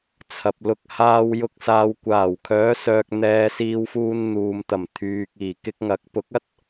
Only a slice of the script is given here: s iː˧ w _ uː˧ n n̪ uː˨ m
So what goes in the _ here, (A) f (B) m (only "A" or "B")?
A